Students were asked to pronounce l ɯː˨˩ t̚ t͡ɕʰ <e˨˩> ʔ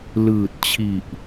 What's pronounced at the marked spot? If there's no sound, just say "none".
i˨˩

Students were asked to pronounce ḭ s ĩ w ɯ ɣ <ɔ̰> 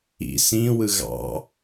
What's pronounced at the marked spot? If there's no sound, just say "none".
ɑ̰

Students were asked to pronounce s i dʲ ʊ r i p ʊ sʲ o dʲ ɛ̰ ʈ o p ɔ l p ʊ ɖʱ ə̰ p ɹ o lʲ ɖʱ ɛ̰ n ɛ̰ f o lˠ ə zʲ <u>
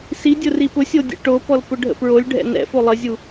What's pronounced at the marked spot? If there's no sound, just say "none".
u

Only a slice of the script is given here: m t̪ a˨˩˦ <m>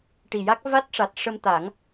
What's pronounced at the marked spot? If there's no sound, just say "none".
ŋ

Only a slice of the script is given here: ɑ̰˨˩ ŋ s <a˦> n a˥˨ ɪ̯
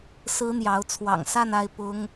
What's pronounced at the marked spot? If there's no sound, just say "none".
a˥˨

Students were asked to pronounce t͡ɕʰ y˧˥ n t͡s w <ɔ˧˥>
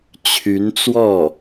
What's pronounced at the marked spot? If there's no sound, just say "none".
ɔ˥˩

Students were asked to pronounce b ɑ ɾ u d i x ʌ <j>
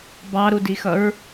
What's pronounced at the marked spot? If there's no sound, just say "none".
ɹ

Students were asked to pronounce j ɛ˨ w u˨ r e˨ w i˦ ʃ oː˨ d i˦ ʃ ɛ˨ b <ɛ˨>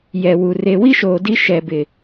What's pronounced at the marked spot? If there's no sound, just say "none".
ɪ˨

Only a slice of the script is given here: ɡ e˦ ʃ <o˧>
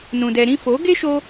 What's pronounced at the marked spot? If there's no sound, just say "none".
o˧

